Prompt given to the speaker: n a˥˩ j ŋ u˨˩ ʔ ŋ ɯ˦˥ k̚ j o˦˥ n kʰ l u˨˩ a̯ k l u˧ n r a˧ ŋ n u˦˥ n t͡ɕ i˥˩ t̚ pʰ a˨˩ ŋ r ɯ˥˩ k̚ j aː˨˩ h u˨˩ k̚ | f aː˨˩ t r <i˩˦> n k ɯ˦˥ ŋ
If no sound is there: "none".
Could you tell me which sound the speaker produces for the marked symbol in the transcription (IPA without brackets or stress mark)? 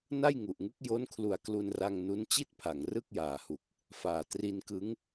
i˧